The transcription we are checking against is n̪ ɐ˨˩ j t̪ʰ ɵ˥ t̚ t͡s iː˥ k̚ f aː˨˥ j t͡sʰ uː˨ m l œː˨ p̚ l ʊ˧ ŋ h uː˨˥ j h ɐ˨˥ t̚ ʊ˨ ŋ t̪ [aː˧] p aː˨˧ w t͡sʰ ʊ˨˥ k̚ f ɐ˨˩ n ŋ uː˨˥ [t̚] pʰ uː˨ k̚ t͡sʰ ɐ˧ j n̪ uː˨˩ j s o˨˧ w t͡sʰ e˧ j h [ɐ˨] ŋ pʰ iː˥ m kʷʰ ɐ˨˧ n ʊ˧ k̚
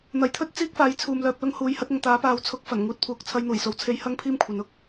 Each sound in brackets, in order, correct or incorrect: incorrect: aː˨˥, correct, incorrect: ɐ˥

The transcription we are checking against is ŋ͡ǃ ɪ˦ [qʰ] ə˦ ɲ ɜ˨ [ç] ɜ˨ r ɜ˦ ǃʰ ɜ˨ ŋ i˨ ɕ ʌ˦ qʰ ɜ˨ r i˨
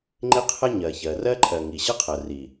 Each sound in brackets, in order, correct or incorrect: correct, correct

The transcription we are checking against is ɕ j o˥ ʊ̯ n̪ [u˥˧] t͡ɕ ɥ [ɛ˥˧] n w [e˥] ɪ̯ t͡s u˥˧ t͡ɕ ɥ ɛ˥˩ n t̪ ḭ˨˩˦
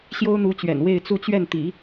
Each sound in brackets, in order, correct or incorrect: incorrect: u˧˥, incorrect: ɛ̰˨˩, incorrect: e˥˧

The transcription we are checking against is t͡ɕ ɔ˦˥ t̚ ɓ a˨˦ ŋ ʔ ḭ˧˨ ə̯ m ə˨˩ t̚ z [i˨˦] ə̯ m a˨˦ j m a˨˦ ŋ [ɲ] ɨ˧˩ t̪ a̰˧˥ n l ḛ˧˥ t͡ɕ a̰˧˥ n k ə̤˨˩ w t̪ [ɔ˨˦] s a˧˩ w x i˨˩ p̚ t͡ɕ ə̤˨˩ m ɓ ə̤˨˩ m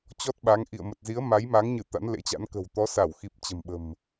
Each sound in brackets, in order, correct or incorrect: correct, correct, correct

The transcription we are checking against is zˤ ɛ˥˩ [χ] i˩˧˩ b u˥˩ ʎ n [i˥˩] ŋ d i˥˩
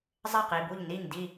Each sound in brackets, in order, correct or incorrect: incorrect: q, correct

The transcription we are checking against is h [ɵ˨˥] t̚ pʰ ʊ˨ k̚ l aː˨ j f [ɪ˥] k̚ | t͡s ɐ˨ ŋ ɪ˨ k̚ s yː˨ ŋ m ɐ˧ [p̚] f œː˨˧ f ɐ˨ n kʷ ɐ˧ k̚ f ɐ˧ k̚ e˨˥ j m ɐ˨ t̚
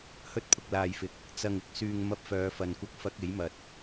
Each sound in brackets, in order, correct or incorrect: incorrect: ɵ˧, incorrect: ɪ˨, correct

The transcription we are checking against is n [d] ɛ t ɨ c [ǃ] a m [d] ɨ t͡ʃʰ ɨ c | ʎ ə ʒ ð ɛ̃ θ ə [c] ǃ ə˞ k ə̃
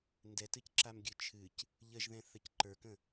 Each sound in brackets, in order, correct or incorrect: correct, incorrect: ǁ, incorrect: ɡʲ, correct

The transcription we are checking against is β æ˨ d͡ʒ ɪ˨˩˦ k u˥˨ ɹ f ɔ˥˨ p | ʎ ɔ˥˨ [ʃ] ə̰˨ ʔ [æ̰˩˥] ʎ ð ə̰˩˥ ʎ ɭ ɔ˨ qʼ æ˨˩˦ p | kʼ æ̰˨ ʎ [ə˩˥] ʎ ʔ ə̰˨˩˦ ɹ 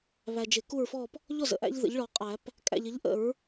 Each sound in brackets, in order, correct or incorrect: incorrect: z, incorrect: æ̰˦, correct

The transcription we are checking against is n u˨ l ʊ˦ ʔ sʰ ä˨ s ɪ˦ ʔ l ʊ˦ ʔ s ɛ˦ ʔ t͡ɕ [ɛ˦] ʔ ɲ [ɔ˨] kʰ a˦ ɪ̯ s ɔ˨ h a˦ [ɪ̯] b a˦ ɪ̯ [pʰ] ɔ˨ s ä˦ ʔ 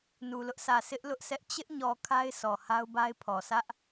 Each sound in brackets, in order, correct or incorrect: incorrect: ɪ˦, correct, incorrect: ʊ̯, correct

